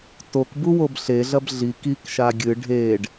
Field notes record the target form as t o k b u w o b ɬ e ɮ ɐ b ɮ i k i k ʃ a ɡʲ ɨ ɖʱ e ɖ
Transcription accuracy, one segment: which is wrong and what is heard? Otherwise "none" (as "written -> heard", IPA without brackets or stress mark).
none